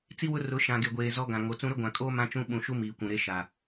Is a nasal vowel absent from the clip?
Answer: no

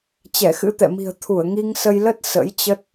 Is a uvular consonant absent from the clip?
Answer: yes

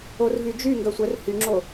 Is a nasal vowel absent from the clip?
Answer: yes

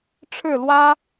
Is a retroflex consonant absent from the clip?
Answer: no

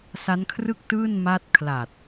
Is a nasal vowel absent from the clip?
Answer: yes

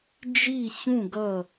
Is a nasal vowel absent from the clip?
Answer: no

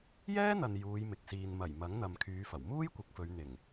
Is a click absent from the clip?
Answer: yes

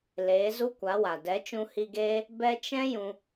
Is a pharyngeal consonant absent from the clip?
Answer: yes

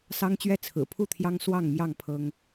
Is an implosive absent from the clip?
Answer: yes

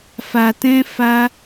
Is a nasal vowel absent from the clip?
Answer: no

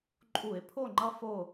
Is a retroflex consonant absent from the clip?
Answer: yes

